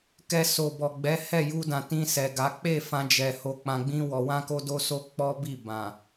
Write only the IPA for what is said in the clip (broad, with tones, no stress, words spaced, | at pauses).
kɛ˧so˨bɔ˨ɡ͡bɛ˨˦ hɛ˦˨ju˧dã˨tĩ˧ sɛ˨ɡa˨˦ k͡pe˦˨ fã˧d͡ʒɛ˨ ho˧k͡pã˧ɡ͡bĩ˦wɔ˧ wã˦ko˦ do˦so˦ k͡pɔ˦bi˦˨ bã˨